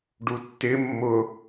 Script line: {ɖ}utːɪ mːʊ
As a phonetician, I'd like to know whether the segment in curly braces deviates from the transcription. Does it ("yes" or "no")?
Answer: no